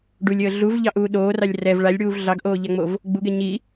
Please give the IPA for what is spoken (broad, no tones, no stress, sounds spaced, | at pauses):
ɖ u lʲ əː ɮ u v ʎ ɑ ʔ uː ɗ oː r ɑ lʲ r ɛ v ɭ a lʲ ɽ uː v ɮ ɑ ɡ ʔ oː ʎ a ŋ͡m o v | ɡ͡b u ɡ ɛ ɲ i